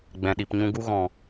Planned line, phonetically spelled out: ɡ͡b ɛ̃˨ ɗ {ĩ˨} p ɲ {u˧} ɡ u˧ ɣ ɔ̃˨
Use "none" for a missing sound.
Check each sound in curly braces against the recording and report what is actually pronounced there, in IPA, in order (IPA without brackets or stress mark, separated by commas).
i˨, ũ˧